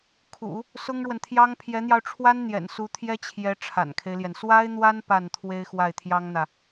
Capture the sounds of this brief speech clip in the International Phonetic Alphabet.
kʰ ṵ˨˩˦ | s ʊ˥ ŋ ɻ w ə˨ n t̪ʰ j ɑ˥ ŋ pʰ j ɛ˧˥ n̪ j ɑ˧ ʊ̯ ʈ͡ʂʰ w a˥ n n̪ j ɛ̰˨˩ n s u˧˥ t̪ʰ j ɛ˥ t͡ɕʰ j ɛ˧˥ ʈ͡ʂʰ a̰˨˩ n kʰ e˦ ɪ̯ l j ɛ˩ n s w a˥ ɪ̯ n̪ w a˥ n p a˥˩ n t̪ʰ w e˥ ɪ̯ x w a˥˩ ɪ̯ t̪ʰ j ɑ˥ ŋ n̪ ä˨

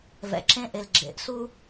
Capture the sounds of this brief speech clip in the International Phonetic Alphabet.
v ɛ̰˨ ǁ ẽ˦ ʔ e˨ l ɡ͡ǁ ḛ˨˦ ʔ s u˦

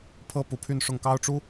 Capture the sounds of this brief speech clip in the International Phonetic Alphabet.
pʰ ɤ˥ p u˧˥ pʰ y˥˧ n ʂ ʊ˥˩ ŋ k ɑ˥ ʊ̯ ʈ͡ʂ u˥

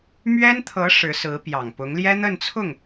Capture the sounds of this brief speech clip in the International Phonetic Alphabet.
m ɥ ɛ˥ n t̪ʰ ɤ˧˥ ʂ ɻ̩˧˥ s ɹ̩˧˥ p j ɑ˨˩ ŋ p ʊ˧˥ ŋ l j ɛ˥ n̪ ə˥˧ n t͡sʰ ʊ˥˩ ŋ

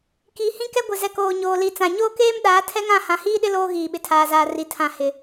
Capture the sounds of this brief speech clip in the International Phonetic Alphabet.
k i˨ h ĩ˦ k ɛ˦ ɡʷ ɪ˨ z ɛ˨ k oː˨ ɲ oː˨ l i˨ t͡s ã˨ ɲ oː˦ k eː˦ m ɗ aː˨˦ tʰ ɛ˦ ŋ ã˦˨ h ã˨ h iː˦ ɗ ɪ˦ l oː˦ ɣ iː˨ ɓ ɪ˨ tʰ aː˨ z aː˨ r i˨ tʰ ã˨ h ɪ˨

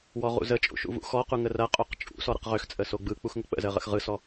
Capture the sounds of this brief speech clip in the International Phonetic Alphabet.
w ɔ ʁ ṵ z ə t͡ʃʼ ṵ ʃ ṵ v ṵ x ɔ q u ŋ ə r ɐ qʼ o q t͡ʃʼ ṵ s ɔ ɾ ə̰ q ʁ ø x t͡sʼ ə s o ɡ͡b ɯ k͡p u x ŋ ə k͡p ə̰ z ə ʁ ə̰ x ʁ ɯ s ɔ

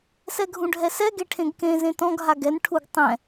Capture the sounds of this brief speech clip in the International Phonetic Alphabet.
s ɛ ɡʱ ũ ɖʱ ɛ s ɛ ɡ e ʈʰ ẽ ɡ k ẽ z ẽ t ɔ̃ ɡ ɦ a ɡ ɛ n ʈʰ u ɡ tˤ ɛ̃

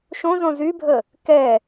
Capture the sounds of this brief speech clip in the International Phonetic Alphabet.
ʃ õ z õ z y bʱ ə | k ɛ

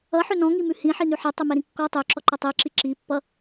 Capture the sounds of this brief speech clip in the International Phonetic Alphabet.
ʌ ħ ø n ɔ̃ ŋ i m ʉ h ĩ ħ i n ʉ ħ ɛ tˤ ø m ɛ ɾ ĩ kː ɔ tˤ ø ǁ ɔ ǃ ʌ tˤ i ǁ i ǁ i pː ʌ

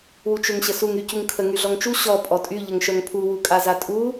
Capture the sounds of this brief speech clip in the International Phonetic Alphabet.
w u t͡ʃ ø ŋ ɕ ə s u ŋ y c u ŋ kʰ ə ŋ y ɮ ɔ ŋ t͡ʃ u ɕ ɔ pʼ ɔ tʼ y ʎ ə ŋ ʃ œ ŋ pʰ u w u kʼ a z a tʼ u

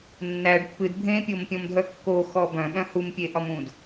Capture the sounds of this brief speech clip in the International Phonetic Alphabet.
nː æ ɖ pː ɨ d bʱ ẽ pʲ o m pʲ ɔ̃ m dʱ œ kː o x ɔ b œ̃ ɓ œ̃ h u m pʲ e ʔ ɒ m ũ d

